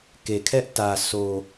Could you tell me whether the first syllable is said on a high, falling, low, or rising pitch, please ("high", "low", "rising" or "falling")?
low